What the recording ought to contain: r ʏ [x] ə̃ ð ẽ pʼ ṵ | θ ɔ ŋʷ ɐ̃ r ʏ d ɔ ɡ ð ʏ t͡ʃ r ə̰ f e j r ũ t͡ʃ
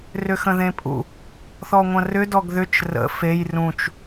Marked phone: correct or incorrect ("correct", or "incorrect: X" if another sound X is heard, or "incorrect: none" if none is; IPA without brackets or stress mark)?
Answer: correct